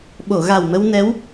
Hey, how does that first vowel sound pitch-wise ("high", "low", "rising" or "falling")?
low